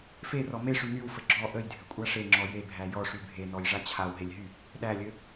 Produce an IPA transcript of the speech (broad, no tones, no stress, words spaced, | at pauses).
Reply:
ferɔ meʂy nywfɘ ɡ͡ǁɔ ʔəjdʱɘkʷʼa ʂeŋ͡ǁɔ jebʱæ jɔʂy bʱenɔjʐa t͡ɕʰawɦelʲɦy | ɗælʲɘ